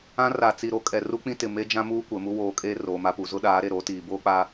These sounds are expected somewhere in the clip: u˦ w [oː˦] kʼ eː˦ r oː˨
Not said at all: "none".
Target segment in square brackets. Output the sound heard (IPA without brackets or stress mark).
oː˨˦